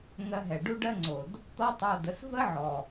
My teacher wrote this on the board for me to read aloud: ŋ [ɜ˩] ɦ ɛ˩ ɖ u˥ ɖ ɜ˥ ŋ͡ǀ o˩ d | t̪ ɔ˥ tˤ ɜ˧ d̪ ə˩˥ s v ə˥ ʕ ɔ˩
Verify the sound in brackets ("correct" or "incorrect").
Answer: incorrect